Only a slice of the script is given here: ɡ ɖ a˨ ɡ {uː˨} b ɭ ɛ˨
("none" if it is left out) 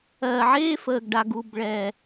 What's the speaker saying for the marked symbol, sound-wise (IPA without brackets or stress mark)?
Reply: u˨